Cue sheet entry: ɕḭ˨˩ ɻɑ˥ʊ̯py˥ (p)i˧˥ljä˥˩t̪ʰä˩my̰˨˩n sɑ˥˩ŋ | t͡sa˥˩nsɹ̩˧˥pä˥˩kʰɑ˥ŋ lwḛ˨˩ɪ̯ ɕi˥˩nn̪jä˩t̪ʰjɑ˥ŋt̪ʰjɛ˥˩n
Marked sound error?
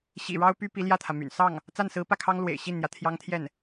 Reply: no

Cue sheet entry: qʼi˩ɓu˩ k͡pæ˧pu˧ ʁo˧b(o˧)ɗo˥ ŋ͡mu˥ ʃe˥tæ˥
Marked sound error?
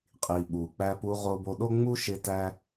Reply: no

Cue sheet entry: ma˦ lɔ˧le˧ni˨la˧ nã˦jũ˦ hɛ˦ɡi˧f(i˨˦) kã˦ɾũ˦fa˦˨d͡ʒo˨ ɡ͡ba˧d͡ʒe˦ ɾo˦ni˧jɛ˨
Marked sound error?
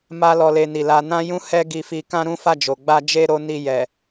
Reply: yes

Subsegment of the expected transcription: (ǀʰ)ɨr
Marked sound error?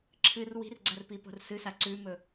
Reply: yes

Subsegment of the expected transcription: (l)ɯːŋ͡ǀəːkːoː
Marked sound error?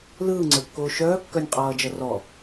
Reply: no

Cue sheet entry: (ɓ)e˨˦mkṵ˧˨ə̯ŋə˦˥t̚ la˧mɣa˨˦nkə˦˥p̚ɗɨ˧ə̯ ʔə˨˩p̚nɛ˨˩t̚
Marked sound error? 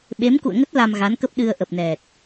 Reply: no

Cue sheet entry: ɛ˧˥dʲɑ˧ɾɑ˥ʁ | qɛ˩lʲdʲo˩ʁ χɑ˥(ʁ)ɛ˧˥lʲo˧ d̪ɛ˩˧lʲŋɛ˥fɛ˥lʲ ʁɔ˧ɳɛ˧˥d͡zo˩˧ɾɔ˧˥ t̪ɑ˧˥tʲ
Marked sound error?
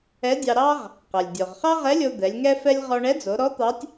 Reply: no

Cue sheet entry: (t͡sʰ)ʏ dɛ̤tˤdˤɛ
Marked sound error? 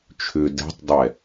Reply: yes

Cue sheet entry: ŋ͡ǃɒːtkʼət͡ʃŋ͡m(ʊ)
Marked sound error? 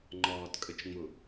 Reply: no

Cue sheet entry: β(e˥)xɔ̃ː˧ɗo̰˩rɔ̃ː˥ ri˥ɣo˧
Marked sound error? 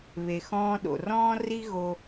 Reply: yes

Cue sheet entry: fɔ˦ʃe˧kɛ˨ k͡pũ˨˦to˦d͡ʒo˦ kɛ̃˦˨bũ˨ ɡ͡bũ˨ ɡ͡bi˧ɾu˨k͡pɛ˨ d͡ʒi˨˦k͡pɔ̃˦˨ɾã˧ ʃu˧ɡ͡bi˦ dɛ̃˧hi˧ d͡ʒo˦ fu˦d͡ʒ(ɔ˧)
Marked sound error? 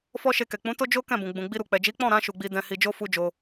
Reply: yes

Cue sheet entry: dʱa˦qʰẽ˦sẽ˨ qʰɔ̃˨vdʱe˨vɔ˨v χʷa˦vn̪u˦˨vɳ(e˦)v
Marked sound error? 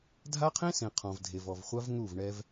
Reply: yes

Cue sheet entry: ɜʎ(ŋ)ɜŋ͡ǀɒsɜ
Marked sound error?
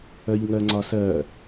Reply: no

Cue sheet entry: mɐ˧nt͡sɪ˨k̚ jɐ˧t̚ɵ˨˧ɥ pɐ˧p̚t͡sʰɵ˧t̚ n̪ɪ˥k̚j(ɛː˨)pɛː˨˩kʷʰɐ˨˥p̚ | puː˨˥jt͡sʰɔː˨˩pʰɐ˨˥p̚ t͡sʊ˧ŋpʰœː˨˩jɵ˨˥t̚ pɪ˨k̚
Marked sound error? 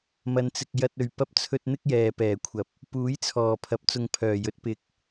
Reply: no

